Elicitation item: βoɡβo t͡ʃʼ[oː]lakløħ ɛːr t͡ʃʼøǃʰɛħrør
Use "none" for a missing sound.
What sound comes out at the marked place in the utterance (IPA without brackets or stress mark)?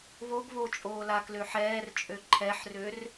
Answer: oː